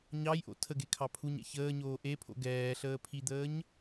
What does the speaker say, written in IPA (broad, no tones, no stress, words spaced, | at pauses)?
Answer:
ɲɑjʔo̰ tʰəɡekʰɑ pʰuɲɛ̰ çəːɲoː ʔepʰo̰ ɡɛːɬəː pʰid̪əːɲ